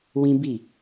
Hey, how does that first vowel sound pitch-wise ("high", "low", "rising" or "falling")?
high